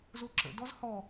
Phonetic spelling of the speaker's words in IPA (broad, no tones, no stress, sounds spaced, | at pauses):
z o ǁ ə̰ d ɔ z h ɔ